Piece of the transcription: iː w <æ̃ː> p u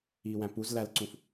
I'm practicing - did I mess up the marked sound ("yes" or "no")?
yes